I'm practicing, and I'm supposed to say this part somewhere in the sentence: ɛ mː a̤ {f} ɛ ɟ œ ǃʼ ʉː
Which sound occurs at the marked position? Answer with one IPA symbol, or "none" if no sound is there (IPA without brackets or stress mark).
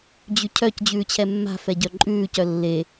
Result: f